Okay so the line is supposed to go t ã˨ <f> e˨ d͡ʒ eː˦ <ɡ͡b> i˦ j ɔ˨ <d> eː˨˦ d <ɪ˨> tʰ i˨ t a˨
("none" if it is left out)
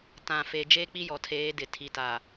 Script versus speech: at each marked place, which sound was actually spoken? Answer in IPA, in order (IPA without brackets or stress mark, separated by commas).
f, k͡p, tʰ, ɪ˨